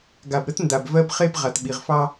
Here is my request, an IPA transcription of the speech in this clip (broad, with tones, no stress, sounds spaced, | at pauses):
ɡ a˨ b ɾ ə˦ t n d a˨ b v ɜ˦ b χ e˦ b ʁ a˨ t ɓ i˨ ʁ f ɑ˦